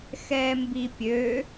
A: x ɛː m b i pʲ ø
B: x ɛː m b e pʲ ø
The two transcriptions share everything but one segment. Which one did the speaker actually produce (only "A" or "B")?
A